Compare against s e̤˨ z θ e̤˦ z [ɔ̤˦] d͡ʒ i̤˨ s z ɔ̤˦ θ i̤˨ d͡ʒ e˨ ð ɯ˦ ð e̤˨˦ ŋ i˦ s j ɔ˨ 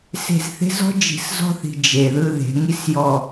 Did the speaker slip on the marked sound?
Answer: no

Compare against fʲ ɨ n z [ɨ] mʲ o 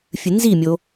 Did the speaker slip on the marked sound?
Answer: yes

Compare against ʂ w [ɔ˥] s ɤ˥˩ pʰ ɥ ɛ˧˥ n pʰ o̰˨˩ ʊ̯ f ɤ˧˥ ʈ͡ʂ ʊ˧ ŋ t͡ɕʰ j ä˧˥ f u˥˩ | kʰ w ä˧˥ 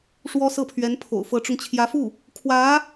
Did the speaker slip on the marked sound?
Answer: no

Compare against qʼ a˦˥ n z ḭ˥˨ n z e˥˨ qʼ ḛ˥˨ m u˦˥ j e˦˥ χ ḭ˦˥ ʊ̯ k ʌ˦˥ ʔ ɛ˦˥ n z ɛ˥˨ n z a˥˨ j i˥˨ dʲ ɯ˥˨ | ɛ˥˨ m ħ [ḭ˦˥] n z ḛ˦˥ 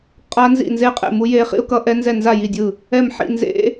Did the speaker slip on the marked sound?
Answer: yes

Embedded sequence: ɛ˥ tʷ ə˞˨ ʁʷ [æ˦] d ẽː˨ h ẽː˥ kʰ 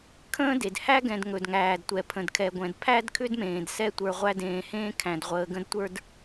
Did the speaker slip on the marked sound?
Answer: no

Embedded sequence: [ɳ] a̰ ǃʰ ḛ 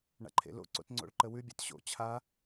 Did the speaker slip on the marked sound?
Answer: no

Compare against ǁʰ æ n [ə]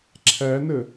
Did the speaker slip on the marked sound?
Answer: no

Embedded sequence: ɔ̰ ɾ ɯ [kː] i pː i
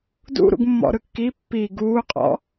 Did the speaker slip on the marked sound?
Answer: no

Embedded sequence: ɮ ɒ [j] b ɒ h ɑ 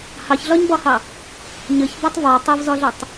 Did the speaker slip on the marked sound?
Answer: yes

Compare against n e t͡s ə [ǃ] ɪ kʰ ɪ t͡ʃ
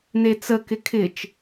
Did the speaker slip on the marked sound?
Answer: yes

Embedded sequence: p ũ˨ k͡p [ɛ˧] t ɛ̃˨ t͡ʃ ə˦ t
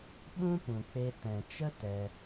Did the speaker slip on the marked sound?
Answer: yes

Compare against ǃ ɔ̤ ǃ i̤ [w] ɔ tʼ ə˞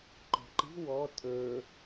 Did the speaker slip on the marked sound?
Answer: no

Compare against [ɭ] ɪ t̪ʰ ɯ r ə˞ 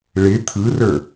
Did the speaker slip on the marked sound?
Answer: no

